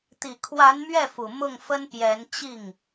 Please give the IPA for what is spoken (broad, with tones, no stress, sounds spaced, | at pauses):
t̪ i˨˩ kʰ w a˧˥ n m ɥ ɛ˥˩ f u˨˩ m ʊ˥˩ ŋ f ə˥ n p j ɛ˧˥ n t͡ɕ i˥˩ ŋ